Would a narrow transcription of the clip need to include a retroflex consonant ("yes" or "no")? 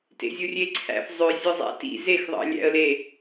no